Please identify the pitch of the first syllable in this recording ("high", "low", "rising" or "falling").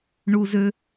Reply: high